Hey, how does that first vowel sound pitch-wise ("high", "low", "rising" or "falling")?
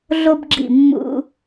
high